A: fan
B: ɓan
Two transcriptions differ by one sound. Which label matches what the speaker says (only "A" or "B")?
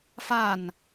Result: A